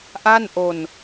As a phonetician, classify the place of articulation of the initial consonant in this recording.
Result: glottal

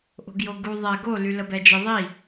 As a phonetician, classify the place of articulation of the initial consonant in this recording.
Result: glottal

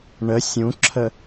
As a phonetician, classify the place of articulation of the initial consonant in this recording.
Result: retroflex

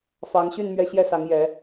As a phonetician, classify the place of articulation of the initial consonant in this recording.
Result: labial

